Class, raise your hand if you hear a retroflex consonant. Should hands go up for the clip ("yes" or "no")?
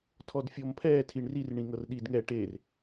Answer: yes